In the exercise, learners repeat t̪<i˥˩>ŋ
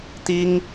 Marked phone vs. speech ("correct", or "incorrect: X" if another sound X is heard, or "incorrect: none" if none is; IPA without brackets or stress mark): incorrect: i˥